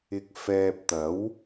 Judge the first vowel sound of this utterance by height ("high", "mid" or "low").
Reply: high